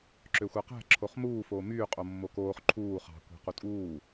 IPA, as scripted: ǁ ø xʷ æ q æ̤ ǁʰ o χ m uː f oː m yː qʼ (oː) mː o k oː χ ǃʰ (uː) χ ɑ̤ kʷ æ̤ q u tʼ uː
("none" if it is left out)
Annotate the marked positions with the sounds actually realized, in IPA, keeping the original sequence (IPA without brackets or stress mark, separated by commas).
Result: o, uː